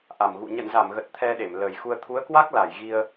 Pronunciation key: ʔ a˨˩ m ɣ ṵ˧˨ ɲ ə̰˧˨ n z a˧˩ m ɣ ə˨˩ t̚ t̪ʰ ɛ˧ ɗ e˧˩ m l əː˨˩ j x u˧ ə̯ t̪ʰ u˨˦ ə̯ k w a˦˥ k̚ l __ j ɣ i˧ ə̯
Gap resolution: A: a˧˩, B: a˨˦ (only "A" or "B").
A